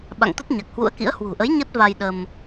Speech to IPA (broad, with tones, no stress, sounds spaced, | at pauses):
ɓ a̰˧˨ ŋ t̪ ə˦˥ t̚ ɲ a˨˩ k̚ h w ṵ˧˥ ə̯ k ḭ˧˥ ə̯ h w ṳ˨˩ ʔ ə˨˦ j ɲ ə˦˥ t̚ v a˧ j ɗ ə˧ m